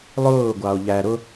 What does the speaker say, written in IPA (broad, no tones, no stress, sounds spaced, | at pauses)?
lˠ ʊː ɡʷ ɑ o̯ ʎ æ ɾ ʊ